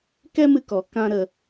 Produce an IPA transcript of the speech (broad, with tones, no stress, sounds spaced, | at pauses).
k ɛ˦ m ɨ˧ k ɔ˨˦ k ã˦ ɾ ə˧